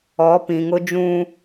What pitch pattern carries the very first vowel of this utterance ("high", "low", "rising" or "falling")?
rising